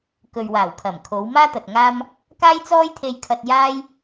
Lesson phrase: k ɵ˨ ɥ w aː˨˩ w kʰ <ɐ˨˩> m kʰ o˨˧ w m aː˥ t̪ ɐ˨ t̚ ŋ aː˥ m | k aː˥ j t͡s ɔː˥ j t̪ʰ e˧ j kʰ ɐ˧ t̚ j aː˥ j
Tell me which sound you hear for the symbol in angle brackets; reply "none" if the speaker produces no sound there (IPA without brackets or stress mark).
ɐ˨˩